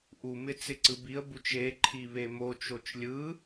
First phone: ʔ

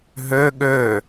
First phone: ɦ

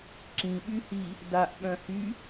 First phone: ǁ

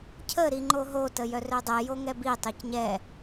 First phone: cʰ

